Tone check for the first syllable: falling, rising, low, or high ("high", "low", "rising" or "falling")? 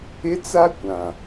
high